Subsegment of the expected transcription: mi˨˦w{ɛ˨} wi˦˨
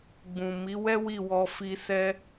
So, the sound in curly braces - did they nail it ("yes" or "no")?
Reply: no